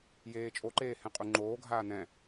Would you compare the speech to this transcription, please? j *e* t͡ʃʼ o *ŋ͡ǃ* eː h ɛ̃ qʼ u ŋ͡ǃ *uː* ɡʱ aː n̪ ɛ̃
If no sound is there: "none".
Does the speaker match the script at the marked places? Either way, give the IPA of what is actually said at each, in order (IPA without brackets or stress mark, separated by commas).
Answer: eː, ǃ, oː